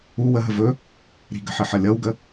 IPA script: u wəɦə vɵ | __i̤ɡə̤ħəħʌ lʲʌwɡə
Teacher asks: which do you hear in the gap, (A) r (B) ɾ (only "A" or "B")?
B